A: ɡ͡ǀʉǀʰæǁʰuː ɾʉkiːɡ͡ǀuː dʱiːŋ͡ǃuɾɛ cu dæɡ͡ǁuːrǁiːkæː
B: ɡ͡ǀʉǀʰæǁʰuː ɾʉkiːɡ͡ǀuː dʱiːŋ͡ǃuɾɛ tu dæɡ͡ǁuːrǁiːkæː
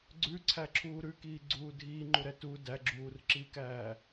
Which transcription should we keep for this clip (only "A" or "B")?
B